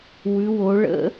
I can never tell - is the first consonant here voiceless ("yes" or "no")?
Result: no